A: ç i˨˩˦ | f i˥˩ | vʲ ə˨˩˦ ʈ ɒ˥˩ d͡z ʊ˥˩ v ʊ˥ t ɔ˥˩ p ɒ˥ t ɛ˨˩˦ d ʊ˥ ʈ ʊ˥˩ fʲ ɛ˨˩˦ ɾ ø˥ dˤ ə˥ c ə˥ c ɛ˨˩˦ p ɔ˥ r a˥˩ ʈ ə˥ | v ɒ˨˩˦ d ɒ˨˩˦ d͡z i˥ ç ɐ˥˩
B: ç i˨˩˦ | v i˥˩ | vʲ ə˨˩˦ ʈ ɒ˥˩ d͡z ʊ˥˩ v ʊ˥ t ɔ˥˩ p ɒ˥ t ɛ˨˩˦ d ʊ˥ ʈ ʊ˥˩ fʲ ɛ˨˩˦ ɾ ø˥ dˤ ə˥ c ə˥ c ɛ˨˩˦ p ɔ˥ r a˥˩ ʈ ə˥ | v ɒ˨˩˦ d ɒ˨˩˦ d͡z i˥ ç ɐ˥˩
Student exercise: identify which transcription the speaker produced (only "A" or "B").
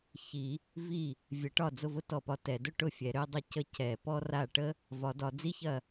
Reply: B